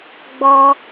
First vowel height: mid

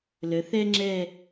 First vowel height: mid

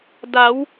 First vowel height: low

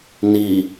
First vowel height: high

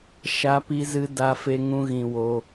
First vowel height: low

